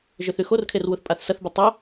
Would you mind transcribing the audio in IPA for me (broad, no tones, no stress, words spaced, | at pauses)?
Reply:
ʒʏθyxorkʰer wuθpʼaθsɐθbu tˤœ